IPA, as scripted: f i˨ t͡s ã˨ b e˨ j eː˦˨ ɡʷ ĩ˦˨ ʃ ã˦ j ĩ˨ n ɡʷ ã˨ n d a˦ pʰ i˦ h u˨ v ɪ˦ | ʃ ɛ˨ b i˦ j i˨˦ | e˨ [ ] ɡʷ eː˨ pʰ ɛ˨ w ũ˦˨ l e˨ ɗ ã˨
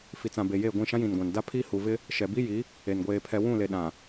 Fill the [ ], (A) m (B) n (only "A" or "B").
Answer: B